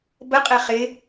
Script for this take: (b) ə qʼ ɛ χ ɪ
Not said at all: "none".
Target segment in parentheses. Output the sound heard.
b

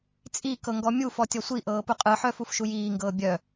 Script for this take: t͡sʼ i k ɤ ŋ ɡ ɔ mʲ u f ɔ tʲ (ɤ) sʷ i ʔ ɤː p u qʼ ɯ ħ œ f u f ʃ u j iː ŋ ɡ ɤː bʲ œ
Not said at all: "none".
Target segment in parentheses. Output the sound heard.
ɔ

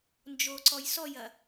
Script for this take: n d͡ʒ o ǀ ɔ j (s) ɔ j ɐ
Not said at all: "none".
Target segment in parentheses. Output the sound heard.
s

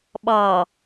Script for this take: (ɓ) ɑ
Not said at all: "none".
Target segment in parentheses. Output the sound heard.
ɓ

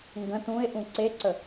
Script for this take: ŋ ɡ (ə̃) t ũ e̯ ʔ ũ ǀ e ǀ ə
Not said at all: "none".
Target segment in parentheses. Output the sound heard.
ə̃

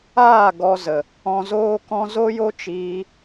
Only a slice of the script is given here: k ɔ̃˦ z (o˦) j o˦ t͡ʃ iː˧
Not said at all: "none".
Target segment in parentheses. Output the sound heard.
o˦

